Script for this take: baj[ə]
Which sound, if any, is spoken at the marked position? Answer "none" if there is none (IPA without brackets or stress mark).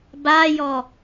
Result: ɔ